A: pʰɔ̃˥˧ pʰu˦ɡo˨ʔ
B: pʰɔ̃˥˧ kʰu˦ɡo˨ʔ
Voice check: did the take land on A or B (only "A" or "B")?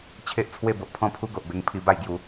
A